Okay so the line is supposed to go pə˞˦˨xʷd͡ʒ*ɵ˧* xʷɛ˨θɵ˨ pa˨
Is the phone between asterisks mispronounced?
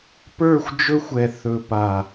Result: no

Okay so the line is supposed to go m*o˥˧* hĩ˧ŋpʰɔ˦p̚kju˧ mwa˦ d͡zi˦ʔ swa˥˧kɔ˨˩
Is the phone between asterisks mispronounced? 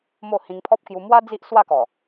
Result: no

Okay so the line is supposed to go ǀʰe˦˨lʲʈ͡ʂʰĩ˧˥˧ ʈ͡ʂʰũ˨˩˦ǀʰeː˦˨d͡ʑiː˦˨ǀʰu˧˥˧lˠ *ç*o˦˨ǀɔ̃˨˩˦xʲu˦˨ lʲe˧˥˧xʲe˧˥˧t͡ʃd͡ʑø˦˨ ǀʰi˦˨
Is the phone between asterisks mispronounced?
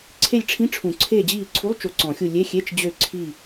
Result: yes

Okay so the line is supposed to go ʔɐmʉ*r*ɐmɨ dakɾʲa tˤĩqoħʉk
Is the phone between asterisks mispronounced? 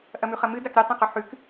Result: yes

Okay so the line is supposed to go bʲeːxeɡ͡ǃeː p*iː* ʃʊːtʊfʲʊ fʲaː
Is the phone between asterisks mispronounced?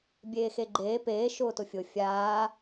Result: yes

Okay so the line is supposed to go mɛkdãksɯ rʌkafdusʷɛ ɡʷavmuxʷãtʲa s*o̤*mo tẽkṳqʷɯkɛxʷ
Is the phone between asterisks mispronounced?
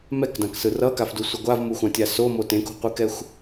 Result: yes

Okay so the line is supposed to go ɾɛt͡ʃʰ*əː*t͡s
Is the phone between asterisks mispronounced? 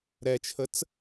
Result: yes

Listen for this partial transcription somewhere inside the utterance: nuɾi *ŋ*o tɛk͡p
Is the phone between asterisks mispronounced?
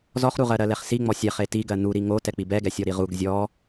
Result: no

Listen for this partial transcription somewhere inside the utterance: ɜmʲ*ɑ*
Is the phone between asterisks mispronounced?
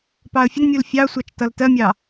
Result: no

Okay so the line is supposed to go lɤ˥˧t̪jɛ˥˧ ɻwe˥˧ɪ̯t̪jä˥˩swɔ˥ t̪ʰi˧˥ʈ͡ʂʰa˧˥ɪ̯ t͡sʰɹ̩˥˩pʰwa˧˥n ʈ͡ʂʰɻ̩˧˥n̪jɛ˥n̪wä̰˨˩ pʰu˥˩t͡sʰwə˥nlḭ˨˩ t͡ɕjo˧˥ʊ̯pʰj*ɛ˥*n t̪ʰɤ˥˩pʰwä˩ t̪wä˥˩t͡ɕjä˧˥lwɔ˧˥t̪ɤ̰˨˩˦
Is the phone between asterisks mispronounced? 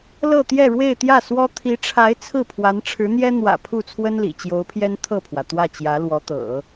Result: no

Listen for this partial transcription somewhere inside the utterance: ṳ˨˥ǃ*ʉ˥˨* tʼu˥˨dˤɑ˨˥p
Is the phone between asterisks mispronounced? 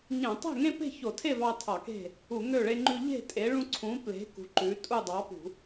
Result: yes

